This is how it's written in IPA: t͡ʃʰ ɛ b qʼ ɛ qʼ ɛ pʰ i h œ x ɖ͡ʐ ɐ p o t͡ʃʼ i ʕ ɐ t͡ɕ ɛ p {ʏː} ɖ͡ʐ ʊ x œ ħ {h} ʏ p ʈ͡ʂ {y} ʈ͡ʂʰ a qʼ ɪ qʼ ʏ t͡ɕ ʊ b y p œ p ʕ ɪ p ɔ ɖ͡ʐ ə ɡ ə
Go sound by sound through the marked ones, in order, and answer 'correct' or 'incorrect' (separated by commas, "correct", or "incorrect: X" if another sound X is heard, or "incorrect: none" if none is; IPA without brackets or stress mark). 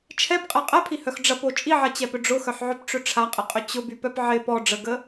incorrect: ʏ, incorrect: ʕ, incorrect: ʏ